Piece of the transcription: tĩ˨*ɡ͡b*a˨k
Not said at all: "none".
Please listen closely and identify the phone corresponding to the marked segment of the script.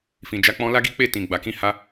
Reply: ɡ͡b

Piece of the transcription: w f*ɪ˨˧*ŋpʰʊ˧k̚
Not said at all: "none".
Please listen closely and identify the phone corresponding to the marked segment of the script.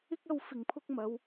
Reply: ɪ˨˩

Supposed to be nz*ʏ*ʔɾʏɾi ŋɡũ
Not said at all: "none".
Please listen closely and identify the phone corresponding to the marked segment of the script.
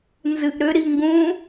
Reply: ɨ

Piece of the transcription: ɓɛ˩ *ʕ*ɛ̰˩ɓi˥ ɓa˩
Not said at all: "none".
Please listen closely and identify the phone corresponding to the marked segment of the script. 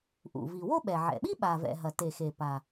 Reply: ʕ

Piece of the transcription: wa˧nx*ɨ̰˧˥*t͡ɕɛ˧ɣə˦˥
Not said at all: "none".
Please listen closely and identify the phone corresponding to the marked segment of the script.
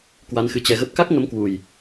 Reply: ɨ˨˦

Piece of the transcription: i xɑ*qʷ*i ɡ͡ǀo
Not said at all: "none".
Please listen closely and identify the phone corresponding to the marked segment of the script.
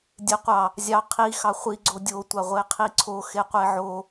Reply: χʷ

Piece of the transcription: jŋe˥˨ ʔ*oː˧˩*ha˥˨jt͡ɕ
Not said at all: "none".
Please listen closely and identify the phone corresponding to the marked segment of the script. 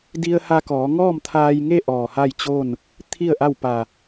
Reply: ɔː˧˩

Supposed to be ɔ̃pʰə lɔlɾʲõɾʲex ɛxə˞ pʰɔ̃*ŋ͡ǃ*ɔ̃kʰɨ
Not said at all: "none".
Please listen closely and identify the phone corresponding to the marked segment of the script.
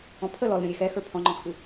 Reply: ŋ͡ǃ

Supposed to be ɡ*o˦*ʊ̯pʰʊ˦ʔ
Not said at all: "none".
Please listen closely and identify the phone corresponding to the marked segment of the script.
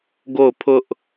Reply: o˦˨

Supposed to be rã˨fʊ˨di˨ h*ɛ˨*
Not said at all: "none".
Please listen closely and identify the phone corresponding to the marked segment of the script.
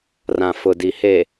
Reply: e˨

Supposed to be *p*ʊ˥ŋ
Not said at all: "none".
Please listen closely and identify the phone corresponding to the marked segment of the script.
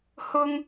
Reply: h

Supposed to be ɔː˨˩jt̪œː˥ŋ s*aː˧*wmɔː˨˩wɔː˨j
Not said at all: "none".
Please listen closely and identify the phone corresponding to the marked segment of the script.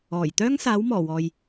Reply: aː˨˥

